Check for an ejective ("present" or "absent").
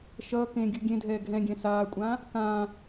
present